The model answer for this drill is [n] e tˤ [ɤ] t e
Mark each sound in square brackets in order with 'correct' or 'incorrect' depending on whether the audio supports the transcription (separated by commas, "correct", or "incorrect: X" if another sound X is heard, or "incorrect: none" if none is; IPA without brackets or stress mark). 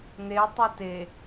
correct, incorrect: ɯ